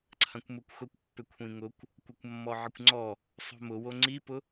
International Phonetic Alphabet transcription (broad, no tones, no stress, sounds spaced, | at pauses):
ǀʰ ɐ̃ kʷ m u kʷ x ʊ kʷ pː ʏ kʷʰ ĩ ŋ ʊ kʷ | kʷ ɐ kʷ mː ɔ ʕ ə kʷ ŋ͡ǀ ɔ | sˤ o̤ m ʊ w o ŋ͡ǀ i p ʊ